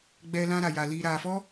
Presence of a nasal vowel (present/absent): present